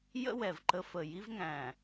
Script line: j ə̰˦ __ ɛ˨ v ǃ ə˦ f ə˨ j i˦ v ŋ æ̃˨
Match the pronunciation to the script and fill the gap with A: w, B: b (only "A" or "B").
A